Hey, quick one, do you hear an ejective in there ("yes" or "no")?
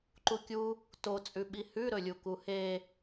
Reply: yes